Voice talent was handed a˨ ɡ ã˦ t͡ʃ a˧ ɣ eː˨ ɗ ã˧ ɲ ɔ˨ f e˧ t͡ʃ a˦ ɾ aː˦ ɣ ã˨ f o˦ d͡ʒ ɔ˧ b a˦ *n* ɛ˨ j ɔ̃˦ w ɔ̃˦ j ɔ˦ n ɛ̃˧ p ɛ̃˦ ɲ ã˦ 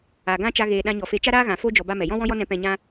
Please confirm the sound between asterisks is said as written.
no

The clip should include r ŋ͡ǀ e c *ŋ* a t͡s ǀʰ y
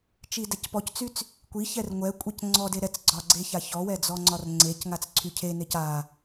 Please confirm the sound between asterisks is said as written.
yes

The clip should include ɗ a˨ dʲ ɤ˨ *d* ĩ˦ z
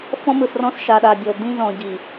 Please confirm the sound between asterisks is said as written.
yes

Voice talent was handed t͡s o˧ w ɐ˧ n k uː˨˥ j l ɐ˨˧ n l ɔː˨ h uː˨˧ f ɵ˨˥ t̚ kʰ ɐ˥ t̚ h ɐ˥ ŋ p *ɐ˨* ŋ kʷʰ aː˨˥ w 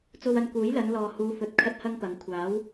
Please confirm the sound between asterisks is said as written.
no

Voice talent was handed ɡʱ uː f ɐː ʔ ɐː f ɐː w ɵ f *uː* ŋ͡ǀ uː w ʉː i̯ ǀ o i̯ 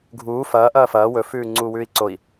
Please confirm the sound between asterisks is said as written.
no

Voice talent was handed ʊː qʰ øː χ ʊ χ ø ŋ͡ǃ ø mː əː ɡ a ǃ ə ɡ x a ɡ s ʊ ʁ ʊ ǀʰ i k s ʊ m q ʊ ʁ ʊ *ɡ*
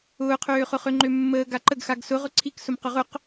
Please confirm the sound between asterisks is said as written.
no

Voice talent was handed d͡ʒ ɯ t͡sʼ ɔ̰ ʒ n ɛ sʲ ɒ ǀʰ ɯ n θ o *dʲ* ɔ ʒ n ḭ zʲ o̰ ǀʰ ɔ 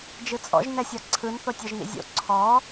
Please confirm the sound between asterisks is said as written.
no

